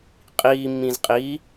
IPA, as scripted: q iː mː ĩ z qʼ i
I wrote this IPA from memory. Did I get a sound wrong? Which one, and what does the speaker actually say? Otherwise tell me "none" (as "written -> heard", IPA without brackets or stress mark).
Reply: q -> qʼ